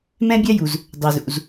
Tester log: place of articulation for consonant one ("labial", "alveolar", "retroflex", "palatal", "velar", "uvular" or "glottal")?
labial